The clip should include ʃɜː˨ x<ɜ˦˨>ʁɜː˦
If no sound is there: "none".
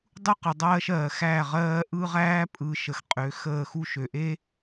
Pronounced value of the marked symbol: æ˦˨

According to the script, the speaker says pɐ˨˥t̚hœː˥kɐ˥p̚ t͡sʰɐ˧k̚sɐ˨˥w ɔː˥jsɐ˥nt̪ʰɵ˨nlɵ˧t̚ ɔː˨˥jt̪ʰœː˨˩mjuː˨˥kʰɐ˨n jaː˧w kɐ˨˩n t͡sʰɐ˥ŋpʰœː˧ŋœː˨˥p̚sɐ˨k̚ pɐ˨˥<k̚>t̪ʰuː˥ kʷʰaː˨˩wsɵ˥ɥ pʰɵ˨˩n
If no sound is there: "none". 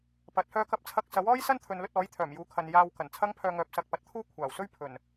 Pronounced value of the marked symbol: t̚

